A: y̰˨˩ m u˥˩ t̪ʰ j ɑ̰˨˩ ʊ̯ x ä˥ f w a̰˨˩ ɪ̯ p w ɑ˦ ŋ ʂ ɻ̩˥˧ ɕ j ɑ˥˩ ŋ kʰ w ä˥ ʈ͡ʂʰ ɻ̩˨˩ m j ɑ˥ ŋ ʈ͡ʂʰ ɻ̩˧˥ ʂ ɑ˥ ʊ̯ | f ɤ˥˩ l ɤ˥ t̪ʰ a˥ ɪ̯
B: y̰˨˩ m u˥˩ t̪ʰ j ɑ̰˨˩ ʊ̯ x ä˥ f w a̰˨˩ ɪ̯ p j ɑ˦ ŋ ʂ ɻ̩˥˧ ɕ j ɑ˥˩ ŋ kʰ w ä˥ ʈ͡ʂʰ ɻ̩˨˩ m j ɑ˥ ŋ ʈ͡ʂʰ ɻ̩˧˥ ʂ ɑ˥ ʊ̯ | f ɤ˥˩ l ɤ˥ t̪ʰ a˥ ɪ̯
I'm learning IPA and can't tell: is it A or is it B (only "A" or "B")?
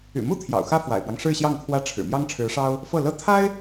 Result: A